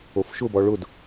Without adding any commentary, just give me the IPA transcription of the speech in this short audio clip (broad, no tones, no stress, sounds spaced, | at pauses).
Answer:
o f ʃ ʊ b ɔ ɭ ʊ d